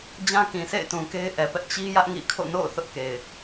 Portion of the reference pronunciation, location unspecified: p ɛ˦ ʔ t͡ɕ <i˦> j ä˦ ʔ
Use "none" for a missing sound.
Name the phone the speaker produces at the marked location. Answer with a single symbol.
i˦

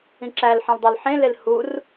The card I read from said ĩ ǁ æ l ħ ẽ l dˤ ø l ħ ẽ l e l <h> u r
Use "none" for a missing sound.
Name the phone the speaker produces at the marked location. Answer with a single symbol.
h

